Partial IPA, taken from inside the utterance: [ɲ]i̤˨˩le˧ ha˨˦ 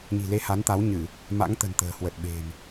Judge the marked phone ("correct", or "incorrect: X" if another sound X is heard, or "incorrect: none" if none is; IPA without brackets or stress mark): correct